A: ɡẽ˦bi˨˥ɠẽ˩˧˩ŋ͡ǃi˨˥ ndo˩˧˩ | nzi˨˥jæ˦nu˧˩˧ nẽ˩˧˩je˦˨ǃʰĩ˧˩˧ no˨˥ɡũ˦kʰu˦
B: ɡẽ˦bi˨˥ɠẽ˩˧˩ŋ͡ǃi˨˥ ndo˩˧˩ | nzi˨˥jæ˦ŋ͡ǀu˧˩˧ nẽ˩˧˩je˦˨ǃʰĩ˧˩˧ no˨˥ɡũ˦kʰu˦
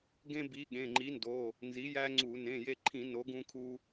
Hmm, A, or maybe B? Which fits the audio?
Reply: B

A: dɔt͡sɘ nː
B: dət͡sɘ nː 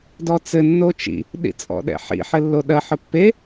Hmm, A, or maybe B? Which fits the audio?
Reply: A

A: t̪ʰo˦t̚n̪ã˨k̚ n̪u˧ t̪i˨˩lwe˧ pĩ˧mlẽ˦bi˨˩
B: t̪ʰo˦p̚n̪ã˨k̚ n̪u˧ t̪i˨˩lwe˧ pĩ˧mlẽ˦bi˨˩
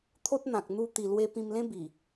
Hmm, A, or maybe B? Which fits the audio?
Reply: A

